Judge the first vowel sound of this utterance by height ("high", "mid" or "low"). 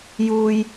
high